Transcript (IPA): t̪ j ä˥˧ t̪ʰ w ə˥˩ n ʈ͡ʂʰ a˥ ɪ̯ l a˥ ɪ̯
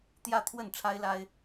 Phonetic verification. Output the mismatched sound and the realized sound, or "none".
none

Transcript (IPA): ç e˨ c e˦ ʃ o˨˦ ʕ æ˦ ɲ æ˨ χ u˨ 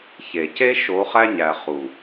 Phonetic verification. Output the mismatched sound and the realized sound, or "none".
ʕ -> χ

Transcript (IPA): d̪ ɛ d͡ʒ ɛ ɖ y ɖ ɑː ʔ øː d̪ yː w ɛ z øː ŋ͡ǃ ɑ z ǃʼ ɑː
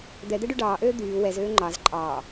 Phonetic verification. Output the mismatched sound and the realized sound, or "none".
d͡ʒ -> d̪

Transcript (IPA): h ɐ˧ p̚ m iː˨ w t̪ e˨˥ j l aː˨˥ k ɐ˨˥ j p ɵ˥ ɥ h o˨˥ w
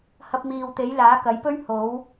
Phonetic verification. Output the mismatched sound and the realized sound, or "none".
none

